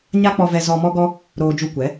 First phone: ɲ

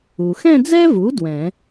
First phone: u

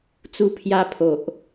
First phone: t͡s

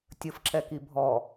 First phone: tʲ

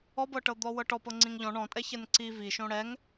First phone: ɔ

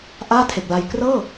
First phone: ʔ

